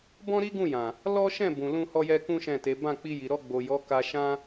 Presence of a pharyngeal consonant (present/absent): absent